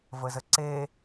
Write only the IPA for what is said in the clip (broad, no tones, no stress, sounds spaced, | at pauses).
v ə z ə ǀ e